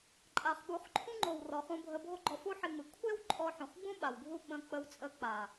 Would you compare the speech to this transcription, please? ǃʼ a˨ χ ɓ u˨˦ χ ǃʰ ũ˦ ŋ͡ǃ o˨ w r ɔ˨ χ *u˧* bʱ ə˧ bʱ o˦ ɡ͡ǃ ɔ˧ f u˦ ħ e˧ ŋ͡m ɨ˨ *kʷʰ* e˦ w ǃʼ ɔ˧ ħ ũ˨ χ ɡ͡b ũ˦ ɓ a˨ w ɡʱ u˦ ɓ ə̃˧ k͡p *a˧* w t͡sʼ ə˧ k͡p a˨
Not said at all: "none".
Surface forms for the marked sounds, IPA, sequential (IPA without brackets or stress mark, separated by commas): ũ˧, kʷʰ, ə˧